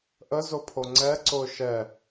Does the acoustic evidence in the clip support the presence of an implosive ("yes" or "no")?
no